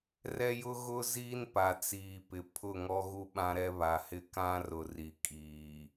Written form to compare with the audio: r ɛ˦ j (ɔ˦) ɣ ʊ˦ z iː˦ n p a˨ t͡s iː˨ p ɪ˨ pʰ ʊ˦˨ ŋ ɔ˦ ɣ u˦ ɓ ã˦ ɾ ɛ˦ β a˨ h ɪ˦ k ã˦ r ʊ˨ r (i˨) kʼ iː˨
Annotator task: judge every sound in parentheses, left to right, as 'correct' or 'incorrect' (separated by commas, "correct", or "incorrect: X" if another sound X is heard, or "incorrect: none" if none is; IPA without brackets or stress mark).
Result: incorrect: ʊ˦, correct